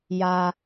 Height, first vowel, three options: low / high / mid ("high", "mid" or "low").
low